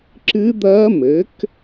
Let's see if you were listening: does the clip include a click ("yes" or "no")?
yes